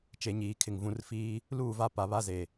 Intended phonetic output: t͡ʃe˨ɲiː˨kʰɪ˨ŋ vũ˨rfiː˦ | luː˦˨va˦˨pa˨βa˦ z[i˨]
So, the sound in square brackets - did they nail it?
no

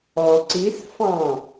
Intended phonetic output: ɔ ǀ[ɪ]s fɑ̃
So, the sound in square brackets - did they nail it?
no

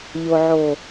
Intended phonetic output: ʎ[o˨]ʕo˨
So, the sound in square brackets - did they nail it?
yes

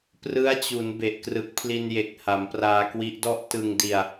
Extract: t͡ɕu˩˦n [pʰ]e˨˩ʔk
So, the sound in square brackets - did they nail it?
no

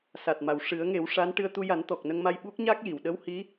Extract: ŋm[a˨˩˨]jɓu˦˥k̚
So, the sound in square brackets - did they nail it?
no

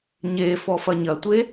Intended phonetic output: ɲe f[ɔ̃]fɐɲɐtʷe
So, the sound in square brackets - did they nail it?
no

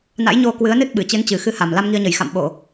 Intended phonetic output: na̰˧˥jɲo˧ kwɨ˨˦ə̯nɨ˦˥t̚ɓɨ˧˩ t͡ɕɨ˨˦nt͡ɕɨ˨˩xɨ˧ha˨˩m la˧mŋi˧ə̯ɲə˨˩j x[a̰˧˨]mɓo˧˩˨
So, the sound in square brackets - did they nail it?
yes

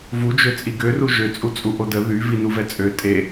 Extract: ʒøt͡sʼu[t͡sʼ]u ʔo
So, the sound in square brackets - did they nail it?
yes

